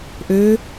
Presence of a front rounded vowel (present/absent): present